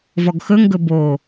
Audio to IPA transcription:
v ɔ ɡ x ɵ ŋ ɡ ɵ b o

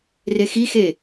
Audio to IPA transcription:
r e x i x e

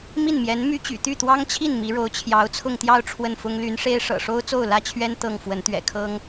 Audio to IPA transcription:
m i˥˩ n m j ɛ˧˥ n m y˥ t͡ɕ y̰˨˩ t̪ y˥˩ t̪ w ɑ˥ ŋ t͡ɕʰ i˥˩ n m i˧˥ ɻ o˧˥ ʊ̯ t͡ɕʰ j ɑ˧˥ ʊ̯ t͡sʰ ʊ˥˧ ŋ t̪ j ɑ˥˧ ʊ̯ ʈ͡ʂʰ w ə˥˩ n f ʊ˥ ŋ l y˧˥ n ʂ e˥ ɪ̯ ʂ ɤ̰˨˩ ʂ o˥ ʊ̯ t͡s o˥˩ ʊ̯ l ä˥ t͡ɕʰ ɥ ɛ˥ n t̪ ɤ˥˩ ŋ f w ə˧˥ n t̪ ɥ ɛ̰˨˩ kʰ ɤ˥ ŋ

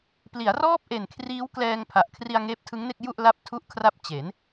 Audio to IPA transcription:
p l i˩˦ a̯ r ɔː˥˩ p̚ ʔ e˨˩ n kʰ r iː˦˥ w k l ɛː˧ ŋ pʰ a˨˩ ʔ kʰ r i˧ a̯ ŋ eː˦˥ p̚ tʰ ɯ˦˥ ŋ n e˥˩ k̚ j u˥˩ ʔ l a˦˥ p̚ tʰ u˦˥ ʔ kʰ r a˦˥ p̚ t͡ɕ e˩˦ n

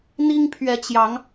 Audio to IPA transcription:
n̪ i˦ ŋ pʰ ɥ ɛ˨˦ t͡ɕ j ɑ˨˦ ŋ

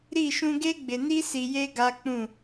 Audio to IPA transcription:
ɾ i˦˨ ʃ ũ˦ ɡ e˦ ɡ͡b ɪ˨ n i˦ s i˨ j e˦ ɡ a˦ k͡p ũ˦˨

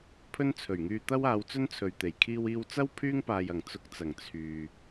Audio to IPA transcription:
pʰ ɵ˥ n t͡sʰ ɵ˨˩ ɥ ŋ yː˧ t̪ ɐ˥ w aː˨˧ w t͡s ɵ˥ n t͡sʰ ɵ˨ ɥ t̪ e˨˩ j kʰ iː˧ w iː˧ w t͡s ɐ˥ w pʰ yː˥ ŋ p aː˨ j ɐ˨˩ ŋ t͡s ʊ˧ k̚ t͡s ɐ˨˩ ŋ t͡sʰ yː˨

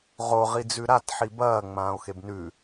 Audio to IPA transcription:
ʁ o ʁ i d͡z ʉ ɾ a t ħ i b ɐː ŋ͡m ãː o̯ x e b n ʉ

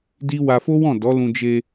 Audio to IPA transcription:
d i˦ w a˧ f o˦ w ɔ̃˦˨ d ɔ˨˦ l ũ˧ d͡ʒ e˧

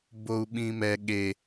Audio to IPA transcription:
b o u̯ ɓ ĩ m ɛ ɠ e

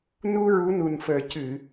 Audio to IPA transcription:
n u˧ ɹ u˧˥ n u˨˩ n f əː˨˩ c ɨ˨˩˨

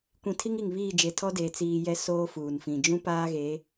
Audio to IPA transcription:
kʷ ĩ˨ tʰ i˦ ŋ i˨ ŋ β iː˦˨ d͡ʒ e˨ tʰ ɔ˦ d eː˨ t͡s iː˨ j ɛ˦ s oː˦ f uː˨ n f ĩ˨ d͡ʒ ũ˦ p aː˦ ɣ e˨˦

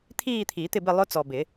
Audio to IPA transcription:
t̪ʰ iː˥˧ t̪ʰ i˨˩˦ t̪ ɪ˥˧ b ɪ˥˧ lˠ ʊ˦˥ t͡s ɔ˨ b ɪ˨˩˦

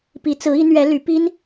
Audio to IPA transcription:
p i˧˥ t͡s ɹ̩˧˥ i˧˥ n̪ ɥ ɛ˧˥ l y˧˥ p i˥ n

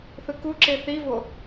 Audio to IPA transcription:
θ ɯ k u ǁ e θ i v o

